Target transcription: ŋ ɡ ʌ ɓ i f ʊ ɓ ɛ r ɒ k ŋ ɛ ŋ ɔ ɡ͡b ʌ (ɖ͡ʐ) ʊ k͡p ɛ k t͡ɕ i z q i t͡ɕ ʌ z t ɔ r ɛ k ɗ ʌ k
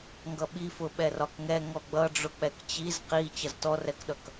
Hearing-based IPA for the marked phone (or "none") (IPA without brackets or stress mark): ɖ͡ʐ